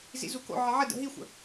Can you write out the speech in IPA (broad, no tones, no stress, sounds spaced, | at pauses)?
z ḭ z u k o̰ ʕ ə ʕ ə d ə̰ ɦ i xʷ ə̰